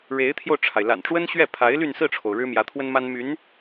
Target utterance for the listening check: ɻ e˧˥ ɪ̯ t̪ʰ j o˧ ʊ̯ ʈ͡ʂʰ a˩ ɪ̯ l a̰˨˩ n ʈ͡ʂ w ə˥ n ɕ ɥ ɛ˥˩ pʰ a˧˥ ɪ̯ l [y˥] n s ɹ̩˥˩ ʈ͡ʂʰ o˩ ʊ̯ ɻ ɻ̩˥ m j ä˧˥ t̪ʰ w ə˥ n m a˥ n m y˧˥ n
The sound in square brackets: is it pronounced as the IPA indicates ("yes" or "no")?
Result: no